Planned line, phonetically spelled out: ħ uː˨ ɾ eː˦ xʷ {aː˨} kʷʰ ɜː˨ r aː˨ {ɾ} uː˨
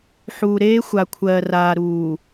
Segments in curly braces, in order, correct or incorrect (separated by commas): incorrect, correct